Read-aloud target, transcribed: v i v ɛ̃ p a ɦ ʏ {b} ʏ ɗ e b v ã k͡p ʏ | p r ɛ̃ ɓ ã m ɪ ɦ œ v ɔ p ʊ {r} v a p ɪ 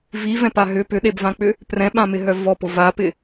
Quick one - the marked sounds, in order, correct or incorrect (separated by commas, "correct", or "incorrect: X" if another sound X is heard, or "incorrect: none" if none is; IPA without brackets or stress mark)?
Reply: incorrect: p, incorrect: none